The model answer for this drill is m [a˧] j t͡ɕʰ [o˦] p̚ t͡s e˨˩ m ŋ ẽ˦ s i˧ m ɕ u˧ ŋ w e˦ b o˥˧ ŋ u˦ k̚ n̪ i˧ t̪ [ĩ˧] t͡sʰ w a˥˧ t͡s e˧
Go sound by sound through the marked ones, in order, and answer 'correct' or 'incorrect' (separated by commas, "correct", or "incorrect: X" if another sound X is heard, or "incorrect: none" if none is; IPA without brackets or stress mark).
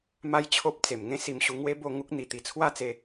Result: incorrect: a˦, correct, incorrect: i˧